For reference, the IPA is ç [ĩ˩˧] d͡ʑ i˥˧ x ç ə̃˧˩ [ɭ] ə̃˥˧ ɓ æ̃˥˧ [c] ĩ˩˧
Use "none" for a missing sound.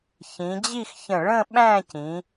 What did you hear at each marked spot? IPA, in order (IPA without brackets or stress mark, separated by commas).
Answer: ĩ˩˧, ɭ, c